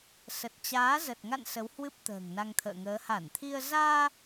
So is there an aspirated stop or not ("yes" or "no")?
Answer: yes